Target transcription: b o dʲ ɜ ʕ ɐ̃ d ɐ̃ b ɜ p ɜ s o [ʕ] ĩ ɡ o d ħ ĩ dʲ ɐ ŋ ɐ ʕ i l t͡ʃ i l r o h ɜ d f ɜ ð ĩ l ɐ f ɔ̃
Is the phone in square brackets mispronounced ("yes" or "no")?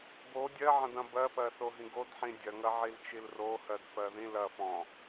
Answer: yes